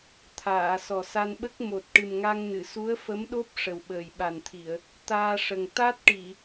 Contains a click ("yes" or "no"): no